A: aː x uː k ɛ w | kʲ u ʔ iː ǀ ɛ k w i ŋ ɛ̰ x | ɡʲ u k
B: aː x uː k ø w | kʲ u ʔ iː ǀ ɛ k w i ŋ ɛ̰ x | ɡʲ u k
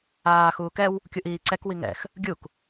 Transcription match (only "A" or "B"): A